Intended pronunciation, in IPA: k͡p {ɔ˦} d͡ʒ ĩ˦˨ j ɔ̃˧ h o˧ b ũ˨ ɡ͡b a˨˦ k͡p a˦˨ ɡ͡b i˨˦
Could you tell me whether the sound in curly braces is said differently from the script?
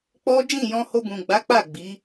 no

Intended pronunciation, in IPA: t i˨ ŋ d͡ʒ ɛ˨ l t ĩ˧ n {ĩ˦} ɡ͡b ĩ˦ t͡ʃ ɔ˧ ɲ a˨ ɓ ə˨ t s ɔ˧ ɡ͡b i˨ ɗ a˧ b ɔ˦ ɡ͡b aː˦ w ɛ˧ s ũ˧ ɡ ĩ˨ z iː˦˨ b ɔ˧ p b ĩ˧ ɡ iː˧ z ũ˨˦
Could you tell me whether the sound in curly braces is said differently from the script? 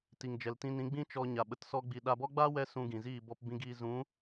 yes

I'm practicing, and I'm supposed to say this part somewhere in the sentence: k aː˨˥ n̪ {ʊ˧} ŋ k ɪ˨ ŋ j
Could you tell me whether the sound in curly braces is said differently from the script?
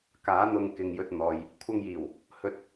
no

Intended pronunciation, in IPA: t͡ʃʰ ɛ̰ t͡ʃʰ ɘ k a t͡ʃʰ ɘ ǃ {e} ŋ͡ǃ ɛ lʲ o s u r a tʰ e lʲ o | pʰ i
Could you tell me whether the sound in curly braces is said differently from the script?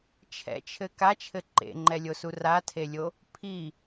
yes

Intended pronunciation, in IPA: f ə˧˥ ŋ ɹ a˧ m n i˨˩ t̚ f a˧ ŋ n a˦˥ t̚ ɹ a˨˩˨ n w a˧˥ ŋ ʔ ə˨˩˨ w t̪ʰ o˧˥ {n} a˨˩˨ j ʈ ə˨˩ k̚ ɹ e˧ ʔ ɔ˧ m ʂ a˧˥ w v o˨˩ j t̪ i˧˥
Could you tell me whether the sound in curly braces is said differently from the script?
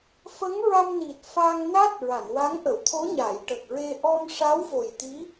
yes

